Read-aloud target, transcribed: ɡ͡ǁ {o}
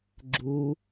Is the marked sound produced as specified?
no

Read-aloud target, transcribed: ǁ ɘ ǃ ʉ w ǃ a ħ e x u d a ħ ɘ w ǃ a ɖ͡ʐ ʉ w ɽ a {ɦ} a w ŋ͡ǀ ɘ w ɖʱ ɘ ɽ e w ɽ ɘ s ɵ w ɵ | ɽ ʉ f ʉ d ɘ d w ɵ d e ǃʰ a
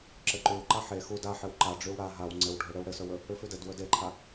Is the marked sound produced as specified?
yes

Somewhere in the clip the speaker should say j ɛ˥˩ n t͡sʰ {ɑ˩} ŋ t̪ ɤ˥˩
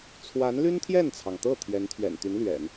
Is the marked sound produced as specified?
yes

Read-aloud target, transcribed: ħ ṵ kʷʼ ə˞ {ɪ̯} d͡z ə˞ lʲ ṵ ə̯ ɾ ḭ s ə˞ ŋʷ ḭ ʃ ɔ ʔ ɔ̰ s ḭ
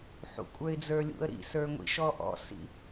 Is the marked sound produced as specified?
yes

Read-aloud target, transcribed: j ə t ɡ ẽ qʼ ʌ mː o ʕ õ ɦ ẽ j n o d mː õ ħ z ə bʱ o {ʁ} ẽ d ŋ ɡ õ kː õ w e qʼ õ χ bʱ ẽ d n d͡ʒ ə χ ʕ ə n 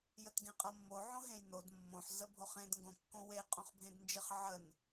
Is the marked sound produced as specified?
no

